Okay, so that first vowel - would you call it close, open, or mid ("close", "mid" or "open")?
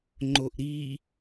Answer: mid